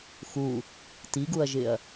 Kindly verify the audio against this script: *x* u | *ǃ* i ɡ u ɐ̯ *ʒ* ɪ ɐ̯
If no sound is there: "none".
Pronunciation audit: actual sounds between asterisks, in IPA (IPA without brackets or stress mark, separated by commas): x, t, ʒ